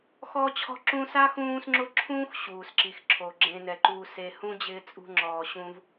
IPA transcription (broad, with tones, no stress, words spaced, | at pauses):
xɔ˥t͡ɕʰɔ̤˥ǁũː˥ sa˥xũː˦sŋ͡ǁʊ˦ǁʰũː˥x ɕuː˩sǁi˩xǁʰo˩ ɡ͡ǁẽ˨nɛ˩ǃuː˨ se˨hũ˥d͡ʑɪː˦ t͡sʼṳ˦ŋ͡ǁɔː˨ɕũ˦v